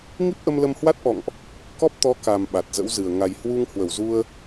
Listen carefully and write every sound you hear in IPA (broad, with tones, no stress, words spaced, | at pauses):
ŋi˦˥p̚ʔə˧mlə˧mhwa˦˥t̚ ʔɔ̰˧˨ŋʔ | kɔ˦˥p̚ t̪ɔ˨˦ ka˨˩m ɓa˨˩t̚zə̰˧˥wzɨ˨˩ə̯ ŋa˨˩jhwu˧ŋ hwə˧˩wzu˧ə̯